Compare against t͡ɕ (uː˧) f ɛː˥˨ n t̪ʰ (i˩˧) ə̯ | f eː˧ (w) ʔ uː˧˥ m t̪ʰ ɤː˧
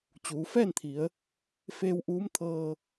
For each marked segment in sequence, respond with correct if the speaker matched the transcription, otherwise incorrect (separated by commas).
incorrect, correct, correct